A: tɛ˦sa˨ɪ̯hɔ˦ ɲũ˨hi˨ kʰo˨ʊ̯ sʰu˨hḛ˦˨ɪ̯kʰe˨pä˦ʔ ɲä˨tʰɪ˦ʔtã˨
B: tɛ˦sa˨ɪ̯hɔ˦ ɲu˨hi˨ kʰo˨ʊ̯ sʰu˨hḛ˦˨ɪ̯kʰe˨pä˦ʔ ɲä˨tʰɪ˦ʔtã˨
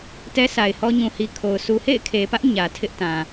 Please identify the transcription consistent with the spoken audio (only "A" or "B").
A